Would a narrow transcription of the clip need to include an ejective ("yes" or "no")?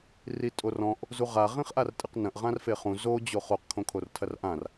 yes